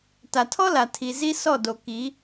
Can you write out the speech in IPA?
t a˨ tʰ ɔ˦ l a˨ tʰ i˨ z i˦ s ɔ˦˨ d o˨ k i˨˦

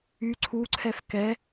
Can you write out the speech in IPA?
y ǀʰ u ǀʰ ɛ f k ɛ

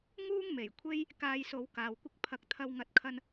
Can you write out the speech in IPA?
ŋ uː˥ ŋ m e˨˩ j kʷʰ e˥ j | k aː˧ j s o˨˧ w k aː˨ w kʷ ɪ˥ k̚ pʰ ɐ˨˥ k̚ t̪ʰ ɐ˧ w ŋ ɐ˨˥ t̚ kʰ ɐ˧ n

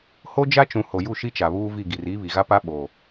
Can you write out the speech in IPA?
h o˦ d͡ʒ a˦ t͡ʃ ũ˨ h o˨ j u˦˨ ʃ i˦ t͡ʃ a˨ β uː˦ v i˦˨ ɡ i˨ r iː˦ β i˨ ɣ a˦ p a˦ ɓ o˨

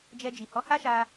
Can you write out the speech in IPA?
d͡ʒ ɛ˧ d͡ʒ i˨ h ɔ˨˦ h a˦ ʃ a˧

